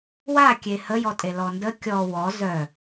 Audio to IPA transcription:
w a kʲ e h ə j ɔ tʼ e l ɔ n d ə kʲ ɔ w ɔ z œ

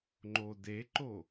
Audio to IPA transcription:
ŋ͡ǃ o d e ǃ o

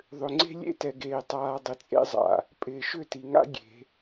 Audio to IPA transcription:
ðˤ ʏ˨ ŋ͡ǀ e̤˦ lʲ ḛ˦ t ɛ˨ ɡ eː˨ tˤ aː˨ dˤ ɪ˨ t͡sʼ ḛ˦ zˤ a̰˨ | pʼ ɪː˨ ʃ ʏ˦˨ t i˨ ŋ a̰˦ ɡʲ e̤˨˦

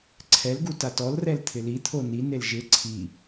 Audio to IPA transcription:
ǀʰ ɛ l ɡ u t a t ɔ l r ɛ l t̪ʰ ɪ l i t̪ʰ o n i n e l ʒ ɪ ǀʰ i

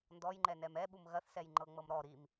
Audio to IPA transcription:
n d ɔ j ŋ͡ǃ ɛ n ɛ m ɛ ɓ u m ɣ ɐ θ s ɛ j ŋ͡ǃ ɤ ŋ͡m ɤ m ɾ ɔ ɾ i m

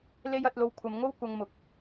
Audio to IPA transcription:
l e˥ j ɐ˨˥ t̚ l o˧ w kʷʰ ɐ˨˧ m ŋ o˥ w kʷ ɐ˧ ŋ m ʊ˨ k̚

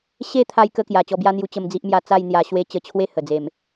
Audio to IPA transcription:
ɕ e˦ t̪ʰ a˧ j k ə˦ k j a˨˩ t͡ɕ ɔ˧ b j a˦ n̪ j u˧ t͡ɕ ə˧ m d͡z i˦ ʔ m j a˥˧ t͡s a˥˧ j n̪ j a˧ ɕ w e˥˧ t͡ɕ ə˧ t͡ɕʰ w e˥˧ h ə˨˩ d͡z e˨˩ m

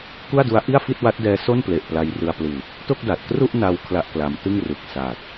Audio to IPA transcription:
k u˥˩ a̯ d u˦˥ a̯ ʔ i˥˩ a̯ f i˥˩ t̚ w a˦˥ t̚ d ɛː˧ s o˥˩ n p l e˨˩ ʔ p l a˧ j r ɯ˧ a̯ p l ɯː˨˩ k̚ | t o˥˩ k̚ d a˨˩ t̚ k r u˥˩ ʔ n a˧ w kʰ l a˥˩ ʔ k l a˧ m t ɯ˥˩ ŋ r ɯ˨˩ k̚ s a˨˩ t̚

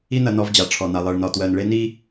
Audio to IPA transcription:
i˦ n ɐ˧ n ɔ˧ v d͡ʑ a˨ ʈ͡ʂʰ ɔ˨ n a˨ lˠ ɜ˨ ɭ n ɒ˨ t w ɜ˨ n ɭ e˧ n i˦

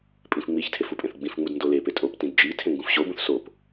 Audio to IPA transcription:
pʼ ĩ f ŋ͡m i ç tʰ e f u pʼ ẽ θ ɡ͡b ĩ f ŋ͡m u d n d o l e p e tʼ o p t ĩ d d͡ʒ i tʰ ẽ ŋ ɡ ũ f ɕ o b ũ θ s o p

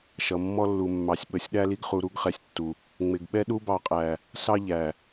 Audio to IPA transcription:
ʃ ʌ˨ mː ɔ˦ lː u˨ mː ɑ˨ sʲ ɓ ə˨ sʲ ɗ æ˦ l i˦ ɡ χ u˨ ɾ u˦ ɡ χ ɛ˨ sʲ tː u˨ | ŋ͡m ɪ˨ ɡ ɓ ɛ˦ ɗ u˦ b ɑ˨ qʼ æ˨ | s ɑ˦ ʎ æ˨

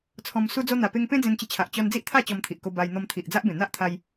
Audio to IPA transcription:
t͡sʰ ɔ̃˧ m s u˧ d͡z o˧ n̪ a˨˩ p e˧ ŋ p ẽ˦ d͡z ẽ˧ n t͡ɕ ə˧ t͡ɕʰ a˨ ʔ t͡ɕ ɔ˧ n d͡z i˦ ʔ t̪ʰ a˥˧ t͡ɕ ɔ˧ m t̪ʰ i˨ ʔ k o˧ b a˧ j n̪ ɔ˧ m t̪ʰ i˨ ʔ d͡z a˦ ʔ b ẽ˨˩ n̪ a˦ ʔ t̪ʰ a˧ j

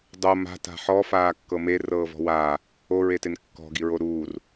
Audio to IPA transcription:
dˤ o m a̤ t a̤ ħ ɔ f aː kː ɤ m e r ɤː v ɔ̤ w aː | o ɹ e t e n kː ɔ̤ ɡ i ɹ o ɾ uː r

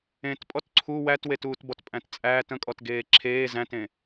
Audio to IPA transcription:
ẽ t pʼ ɔ t ǀʰ u w æ t w e t uː t b ɔ t pʼ æ̃ t t͡sʼ æː t ə̃ kʼ ɔ t ɡ eː ǁʰ eː z æ̃ t ẽ

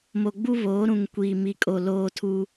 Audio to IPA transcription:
m o˨ ɡ͡b u˦ β oː˨˦ ɾ ũ˨ ŋ kʷ iː˨ m i˨ kʼ o˨ l oː˦ tʰ u˦

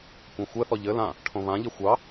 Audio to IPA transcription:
kʷ ã xʷ ɛ θ ɔ ʎ ɘ l ã | ʈʰ õ β ã ʎ ɪ xʷ ɑ

